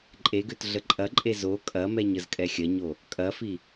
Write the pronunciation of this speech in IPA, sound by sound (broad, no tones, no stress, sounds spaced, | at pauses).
ǃʼ e ɡ ø t ɮ ə ǃʼ ɐ ǃʼ e z o kʼ ɐ m ɛ ɲ ə z kʼ ɛ xʲ ɐ ɲ o | kʼ ɐ f i